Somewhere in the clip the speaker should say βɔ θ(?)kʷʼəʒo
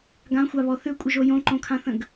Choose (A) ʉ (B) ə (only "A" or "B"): A